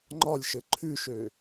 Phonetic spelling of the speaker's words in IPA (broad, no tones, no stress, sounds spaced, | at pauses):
ŋ͡ǃ ɒ lʲ ʃ ɘ ǃʰ ʉ ʃ ø